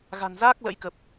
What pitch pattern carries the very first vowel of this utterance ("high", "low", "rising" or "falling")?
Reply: low